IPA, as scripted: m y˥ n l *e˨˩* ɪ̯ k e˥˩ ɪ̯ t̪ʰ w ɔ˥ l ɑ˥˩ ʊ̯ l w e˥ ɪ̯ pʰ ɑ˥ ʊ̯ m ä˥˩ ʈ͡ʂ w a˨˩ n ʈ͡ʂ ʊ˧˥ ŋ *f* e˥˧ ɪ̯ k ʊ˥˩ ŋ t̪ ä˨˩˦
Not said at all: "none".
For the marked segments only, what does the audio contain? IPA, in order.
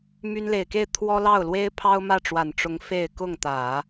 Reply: e˨˩, f

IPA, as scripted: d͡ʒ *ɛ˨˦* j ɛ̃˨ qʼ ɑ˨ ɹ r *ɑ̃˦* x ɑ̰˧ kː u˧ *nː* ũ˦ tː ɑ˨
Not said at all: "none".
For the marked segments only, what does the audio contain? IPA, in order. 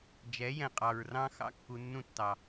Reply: ɛ˨˦, ɑ̃˦, nː

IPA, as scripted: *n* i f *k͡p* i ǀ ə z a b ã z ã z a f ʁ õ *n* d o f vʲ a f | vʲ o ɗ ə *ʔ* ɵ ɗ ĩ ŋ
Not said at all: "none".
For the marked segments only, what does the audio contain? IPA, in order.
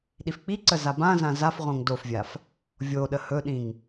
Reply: ɗ, k͡p, ŋ, h

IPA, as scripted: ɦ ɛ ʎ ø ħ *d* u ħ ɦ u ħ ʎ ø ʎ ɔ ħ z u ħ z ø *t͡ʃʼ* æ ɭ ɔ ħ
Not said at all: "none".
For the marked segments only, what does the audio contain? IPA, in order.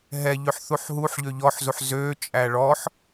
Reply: θ, t͡ʃʼ

